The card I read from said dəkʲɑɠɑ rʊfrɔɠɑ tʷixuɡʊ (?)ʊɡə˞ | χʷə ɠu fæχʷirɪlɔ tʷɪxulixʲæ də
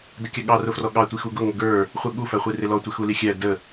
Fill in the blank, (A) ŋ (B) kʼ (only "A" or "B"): A